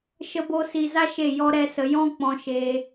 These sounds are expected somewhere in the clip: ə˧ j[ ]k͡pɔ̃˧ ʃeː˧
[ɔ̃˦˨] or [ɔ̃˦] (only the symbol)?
ɔ̃˦